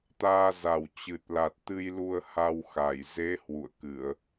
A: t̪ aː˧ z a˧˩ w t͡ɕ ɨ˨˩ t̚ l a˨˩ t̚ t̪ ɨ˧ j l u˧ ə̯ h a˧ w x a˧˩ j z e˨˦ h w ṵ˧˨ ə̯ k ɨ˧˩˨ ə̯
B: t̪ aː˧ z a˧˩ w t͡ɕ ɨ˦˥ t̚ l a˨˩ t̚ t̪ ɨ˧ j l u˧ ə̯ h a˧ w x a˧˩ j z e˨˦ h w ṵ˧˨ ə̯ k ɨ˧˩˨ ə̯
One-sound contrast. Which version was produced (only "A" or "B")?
A